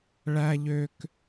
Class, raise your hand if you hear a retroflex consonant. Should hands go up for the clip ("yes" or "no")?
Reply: yes